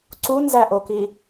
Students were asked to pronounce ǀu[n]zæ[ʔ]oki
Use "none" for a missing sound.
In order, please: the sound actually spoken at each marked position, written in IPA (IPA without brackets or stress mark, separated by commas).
n, ʔ